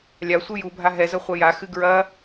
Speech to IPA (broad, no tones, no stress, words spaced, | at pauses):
lʲasʷɨ jubʱa ɦɛzɐ χʷɐjaxɨ ɡɹɐ